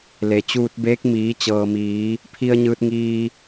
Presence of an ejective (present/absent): absent